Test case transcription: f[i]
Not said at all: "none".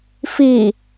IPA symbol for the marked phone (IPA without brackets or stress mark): i